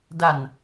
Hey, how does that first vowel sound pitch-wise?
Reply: low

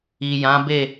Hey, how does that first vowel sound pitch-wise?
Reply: low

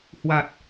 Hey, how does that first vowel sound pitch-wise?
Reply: low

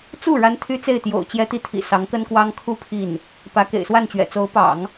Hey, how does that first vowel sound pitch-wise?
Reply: falling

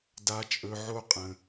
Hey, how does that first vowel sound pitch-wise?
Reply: high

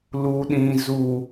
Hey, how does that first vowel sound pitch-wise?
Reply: low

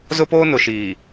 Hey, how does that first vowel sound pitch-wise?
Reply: high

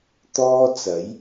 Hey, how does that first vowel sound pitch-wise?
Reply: high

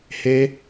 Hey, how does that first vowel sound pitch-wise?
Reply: high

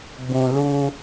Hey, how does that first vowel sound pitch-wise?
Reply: low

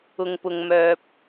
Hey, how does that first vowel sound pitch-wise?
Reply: low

